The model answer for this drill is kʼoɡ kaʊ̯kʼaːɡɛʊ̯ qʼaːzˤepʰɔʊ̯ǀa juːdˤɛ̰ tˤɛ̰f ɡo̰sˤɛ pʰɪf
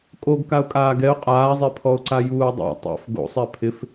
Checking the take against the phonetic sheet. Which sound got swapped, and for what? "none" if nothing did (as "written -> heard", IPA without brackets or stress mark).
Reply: none